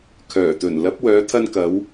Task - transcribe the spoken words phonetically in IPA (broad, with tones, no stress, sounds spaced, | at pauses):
kʰ œː˨˩ t̪ ɵ˨˩ n l ɐ˨˥ p̚ w œː˨˧ t̪ʰ ɐ˧ n k ɐ˨˧ w